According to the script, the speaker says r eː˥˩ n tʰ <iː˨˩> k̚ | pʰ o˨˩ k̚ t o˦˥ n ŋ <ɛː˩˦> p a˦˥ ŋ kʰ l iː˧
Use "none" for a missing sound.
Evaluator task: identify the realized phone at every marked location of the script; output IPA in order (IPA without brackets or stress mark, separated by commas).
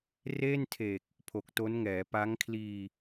eː˨˩, ɛː˩˦